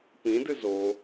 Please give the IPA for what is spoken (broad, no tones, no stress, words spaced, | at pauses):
pĩdɨ zo